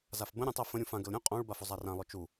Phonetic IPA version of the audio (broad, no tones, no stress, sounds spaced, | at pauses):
z a f b ə̃ ɾʲ õ tˤ ə f ə̃ ɾʲ ũ f ã ɡ ə l ɾʲ õ qʼ õ ɭ b a f ɵ zˤ a r ã lˠ ɵ t͡ʃ u